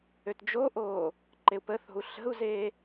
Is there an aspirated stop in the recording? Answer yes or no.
no